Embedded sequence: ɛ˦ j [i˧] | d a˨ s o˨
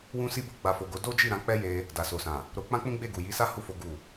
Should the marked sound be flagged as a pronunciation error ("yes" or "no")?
yes